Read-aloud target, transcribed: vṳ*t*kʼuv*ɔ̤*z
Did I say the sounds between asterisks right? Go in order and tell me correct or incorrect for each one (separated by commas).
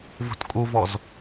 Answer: correct, incorrect